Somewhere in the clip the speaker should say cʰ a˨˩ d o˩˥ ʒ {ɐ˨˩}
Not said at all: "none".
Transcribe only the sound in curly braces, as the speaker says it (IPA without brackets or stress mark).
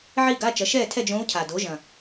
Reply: ɐ̃˨˩